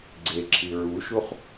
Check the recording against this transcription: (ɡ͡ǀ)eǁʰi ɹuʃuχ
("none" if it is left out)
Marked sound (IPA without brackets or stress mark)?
ɡ͡ǀ